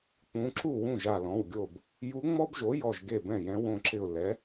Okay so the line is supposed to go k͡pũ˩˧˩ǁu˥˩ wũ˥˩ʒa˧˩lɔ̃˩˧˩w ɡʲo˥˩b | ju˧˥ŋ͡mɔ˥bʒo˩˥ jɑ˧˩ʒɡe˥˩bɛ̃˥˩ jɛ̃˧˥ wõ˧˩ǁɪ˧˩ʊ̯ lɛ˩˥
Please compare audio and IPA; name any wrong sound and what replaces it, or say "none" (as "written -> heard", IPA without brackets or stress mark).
ɑ˧˩ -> ɔ˧˩